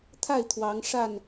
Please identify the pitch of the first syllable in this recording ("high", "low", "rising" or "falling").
falling